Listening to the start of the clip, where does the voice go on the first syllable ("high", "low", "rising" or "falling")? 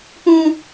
high